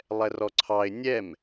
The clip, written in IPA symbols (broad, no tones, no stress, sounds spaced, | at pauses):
lˠ ɛ r ɔ ǀʰ ɑ ɪ̯ nʲ ɛ m